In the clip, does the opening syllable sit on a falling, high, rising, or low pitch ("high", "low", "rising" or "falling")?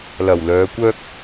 low